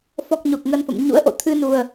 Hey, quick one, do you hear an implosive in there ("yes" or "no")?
no